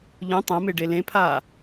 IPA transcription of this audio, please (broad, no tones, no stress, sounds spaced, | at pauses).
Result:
ʎ ũ tˤ ɛ̃ m e ɖ e l ẽ pʰ aː